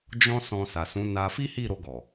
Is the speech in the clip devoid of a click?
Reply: yes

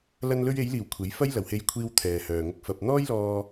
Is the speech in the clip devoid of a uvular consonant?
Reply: yes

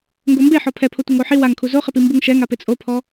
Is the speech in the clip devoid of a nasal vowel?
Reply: yes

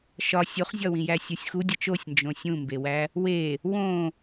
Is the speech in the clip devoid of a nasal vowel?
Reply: no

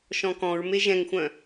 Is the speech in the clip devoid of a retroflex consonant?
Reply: yes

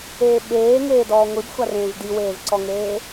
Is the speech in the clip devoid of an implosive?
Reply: no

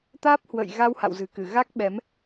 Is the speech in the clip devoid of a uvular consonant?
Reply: yes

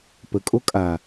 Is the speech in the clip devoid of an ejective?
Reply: no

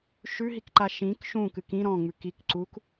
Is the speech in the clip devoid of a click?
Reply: no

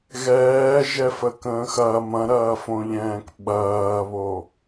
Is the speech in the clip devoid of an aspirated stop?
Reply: yes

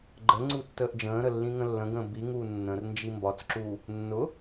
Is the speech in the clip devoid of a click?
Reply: no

